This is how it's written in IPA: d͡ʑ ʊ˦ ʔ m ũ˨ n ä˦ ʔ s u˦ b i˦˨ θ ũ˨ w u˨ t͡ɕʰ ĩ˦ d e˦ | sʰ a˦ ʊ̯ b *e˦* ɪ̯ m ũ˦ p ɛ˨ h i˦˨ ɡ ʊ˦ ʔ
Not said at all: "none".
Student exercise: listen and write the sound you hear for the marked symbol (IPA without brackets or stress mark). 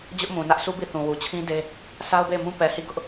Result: e˦˨